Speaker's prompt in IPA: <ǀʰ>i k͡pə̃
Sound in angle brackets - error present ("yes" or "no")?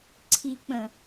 no